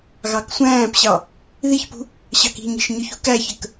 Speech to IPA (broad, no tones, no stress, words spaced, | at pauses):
ɣɑksʷæ̃ːpɕɑ | ðiçpṳ | ɕɑki̤ɲi̤ʃ ɲʊçṳkæçək